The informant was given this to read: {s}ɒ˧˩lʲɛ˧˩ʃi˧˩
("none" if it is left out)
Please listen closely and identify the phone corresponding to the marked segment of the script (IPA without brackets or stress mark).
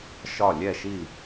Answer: ʃ